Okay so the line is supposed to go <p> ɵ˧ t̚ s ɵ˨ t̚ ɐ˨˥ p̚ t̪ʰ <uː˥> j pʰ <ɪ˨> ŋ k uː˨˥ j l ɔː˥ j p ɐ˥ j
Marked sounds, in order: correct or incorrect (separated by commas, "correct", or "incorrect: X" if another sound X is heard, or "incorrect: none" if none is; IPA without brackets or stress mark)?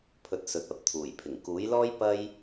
incorrect: pʰ, incorrect: uː˨˩, incorrect: ɪ˨˩